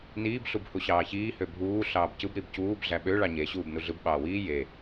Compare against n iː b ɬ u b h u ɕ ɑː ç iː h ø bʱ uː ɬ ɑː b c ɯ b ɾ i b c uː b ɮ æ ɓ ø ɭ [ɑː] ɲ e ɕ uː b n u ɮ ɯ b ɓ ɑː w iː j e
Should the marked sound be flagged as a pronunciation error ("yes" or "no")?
yes